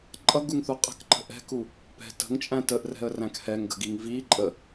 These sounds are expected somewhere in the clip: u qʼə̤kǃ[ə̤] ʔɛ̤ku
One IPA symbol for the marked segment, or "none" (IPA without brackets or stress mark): ə̤